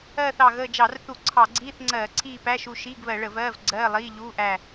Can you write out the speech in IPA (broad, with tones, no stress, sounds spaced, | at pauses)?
ɜː˦˨ θ ɑ˨˩ ɣ əː˦˨ d͡ʒ ɑ˧˩˧ r θ u˧˩˧ ǀʰ ɑ˧˩˧ ɡ͡ǀ iː˧˥˧ θ ŋ͡ǀ ɜː˧˩˧ ǀʰ iː˦˨ p æ˧˥˧ ʃ u˦˨ ʃ iː˧˥˧ ɡ β ɜ˧˩˧ ɭ ə˧˩˧ v ɜː˧˥˧ v ɡ͡ǀ ɜː˧˥˧ lˠ iː˧˥˧ ʎ uː˧˥˧ ʔ æ˦˨